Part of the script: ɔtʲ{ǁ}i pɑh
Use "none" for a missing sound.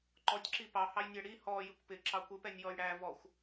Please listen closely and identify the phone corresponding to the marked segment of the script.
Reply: ǁ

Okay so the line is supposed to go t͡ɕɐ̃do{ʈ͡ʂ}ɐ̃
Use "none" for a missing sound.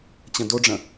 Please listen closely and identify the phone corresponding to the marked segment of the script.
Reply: ɖ͡ʐ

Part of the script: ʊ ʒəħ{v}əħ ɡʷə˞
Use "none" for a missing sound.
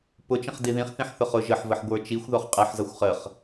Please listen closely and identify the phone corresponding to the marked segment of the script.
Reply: v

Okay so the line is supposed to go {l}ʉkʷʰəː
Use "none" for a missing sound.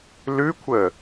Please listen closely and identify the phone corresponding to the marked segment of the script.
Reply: l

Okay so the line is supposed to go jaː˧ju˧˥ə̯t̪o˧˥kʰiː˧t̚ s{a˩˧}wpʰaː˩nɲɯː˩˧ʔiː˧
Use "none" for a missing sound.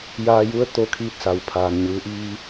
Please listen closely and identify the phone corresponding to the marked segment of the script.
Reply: a˩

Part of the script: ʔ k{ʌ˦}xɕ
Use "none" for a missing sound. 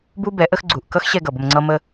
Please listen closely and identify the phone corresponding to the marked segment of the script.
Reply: ʌ˦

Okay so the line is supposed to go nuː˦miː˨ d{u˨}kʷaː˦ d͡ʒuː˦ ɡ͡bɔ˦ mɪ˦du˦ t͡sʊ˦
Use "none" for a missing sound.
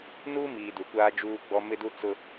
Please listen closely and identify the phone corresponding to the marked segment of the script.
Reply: u˨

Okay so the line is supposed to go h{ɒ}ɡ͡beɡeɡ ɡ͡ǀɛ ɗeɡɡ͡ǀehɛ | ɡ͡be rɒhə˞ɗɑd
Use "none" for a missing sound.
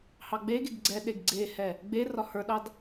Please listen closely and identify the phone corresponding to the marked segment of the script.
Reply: ɑ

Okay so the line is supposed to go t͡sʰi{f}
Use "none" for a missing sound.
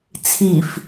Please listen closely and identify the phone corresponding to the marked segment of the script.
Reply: f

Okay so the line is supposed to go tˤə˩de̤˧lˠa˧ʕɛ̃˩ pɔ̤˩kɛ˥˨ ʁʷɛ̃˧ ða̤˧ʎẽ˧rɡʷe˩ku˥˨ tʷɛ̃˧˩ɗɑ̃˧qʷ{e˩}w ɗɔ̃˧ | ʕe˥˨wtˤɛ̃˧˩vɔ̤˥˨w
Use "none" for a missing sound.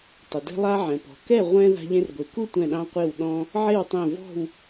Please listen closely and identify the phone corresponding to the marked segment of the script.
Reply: e˧˩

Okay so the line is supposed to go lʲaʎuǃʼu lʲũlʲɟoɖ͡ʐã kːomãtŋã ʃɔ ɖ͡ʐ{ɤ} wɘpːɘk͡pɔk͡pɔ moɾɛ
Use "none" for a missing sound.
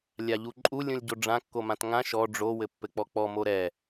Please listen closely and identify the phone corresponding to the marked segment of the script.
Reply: o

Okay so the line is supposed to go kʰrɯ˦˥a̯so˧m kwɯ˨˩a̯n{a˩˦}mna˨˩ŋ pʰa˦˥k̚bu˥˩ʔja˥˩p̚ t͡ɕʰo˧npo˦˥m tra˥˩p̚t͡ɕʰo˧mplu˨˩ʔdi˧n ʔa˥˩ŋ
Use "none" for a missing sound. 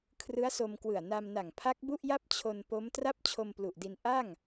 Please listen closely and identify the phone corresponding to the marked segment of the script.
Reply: a˧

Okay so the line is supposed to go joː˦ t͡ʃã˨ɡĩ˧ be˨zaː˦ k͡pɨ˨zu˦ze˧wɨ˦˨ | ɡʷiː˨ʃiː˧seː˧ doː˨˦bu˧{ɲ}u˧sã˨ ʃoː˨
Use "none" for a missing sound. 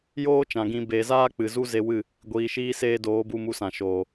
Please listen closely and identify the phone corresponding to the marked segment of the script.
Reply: m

